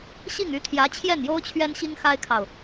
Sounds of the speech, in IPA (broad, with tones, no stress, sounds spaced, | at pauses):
ɕ i˥˩ ŋ y˧˥ t̪ʰ j ä˧˥ t͡ɕʰ j ɛ˥˩ n j o˥ ʊ̯ t͡ɕʰ ɥ ɛ˥ n ɕ i˥ ŋ x a˥ ɪ̯ kʰ ɑ˨ ʊ̯